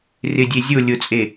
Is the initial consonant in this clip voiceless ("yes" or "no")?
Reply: no